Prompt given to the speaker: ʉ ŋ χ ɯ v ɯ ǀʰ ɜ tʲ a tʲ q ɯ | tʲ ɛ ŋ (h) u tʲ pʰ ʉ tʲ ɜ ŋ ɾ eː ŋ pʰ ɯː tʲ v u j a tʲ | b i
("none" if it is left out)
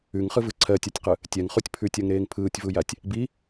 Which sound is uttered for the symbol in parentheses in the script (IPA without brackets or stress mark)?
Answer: χ